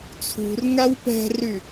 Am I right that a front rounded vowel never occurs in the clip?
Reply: no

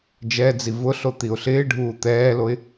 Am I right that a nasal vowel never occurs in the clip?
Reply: yes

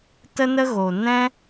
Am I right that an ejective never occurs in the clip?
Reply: yes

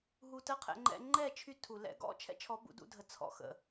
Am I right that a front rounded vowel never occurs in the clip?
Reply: no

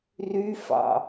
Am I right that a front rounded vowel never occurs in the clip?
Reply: no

